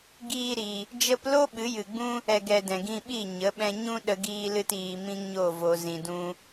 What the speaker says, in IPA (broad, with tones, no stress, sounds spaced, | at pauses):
ɡ iː˧ ɾ i˨ | d͡ʒ ə˧ p l o˦ ɓ ɨ˨˦ j ɨ˨ ɡ͡b ũ˦ | ɛ˨ ɡ ɛ˨ d ɛ̃˨ ɡ ĩ˧ ɓ i˦˨ ɲ ə˨˦ ɓ ɛ̃˧ ɲ ũ˦ ɗ ə˧ ɡ iː˧ l ɨ˧ t iː˧ m ĩ˦ ŋ ɲ o˦˨ v o˧ z ĩ˨ d ũ˧